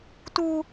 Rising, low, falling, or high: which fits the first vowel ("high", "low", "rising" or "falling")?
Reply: high